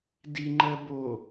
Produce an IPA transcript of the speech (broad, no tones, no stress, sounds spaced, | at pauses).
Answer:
d i ŋ͡ǃ ɜ b o